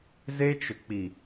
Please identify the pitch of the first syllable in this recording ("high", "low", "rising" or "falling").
high